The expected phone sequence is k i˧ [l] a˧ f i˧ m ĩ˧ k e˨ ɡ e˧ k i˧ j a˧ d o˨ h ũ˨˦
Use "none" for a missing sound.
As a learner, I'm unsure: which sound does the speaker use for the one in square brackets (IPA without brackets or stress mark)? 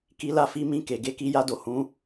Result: l